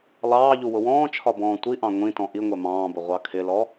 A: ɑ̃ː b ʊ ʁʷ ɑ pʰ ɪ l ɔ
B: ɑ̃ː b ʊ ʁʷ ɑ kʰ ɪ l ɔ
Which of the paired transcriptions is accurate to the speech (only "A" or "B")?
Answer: B